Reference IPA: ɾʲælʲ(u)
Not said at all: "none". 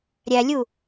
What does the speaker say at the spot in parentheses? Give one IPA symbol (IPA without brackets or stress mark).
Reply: u